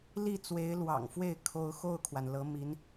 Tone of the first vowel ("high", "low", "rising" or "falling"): falling